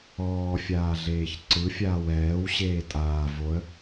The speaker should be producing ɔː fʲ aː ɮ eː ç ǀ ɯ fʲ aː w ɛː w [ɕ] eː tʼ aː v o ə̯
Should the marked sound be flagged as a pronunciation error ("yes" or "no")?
no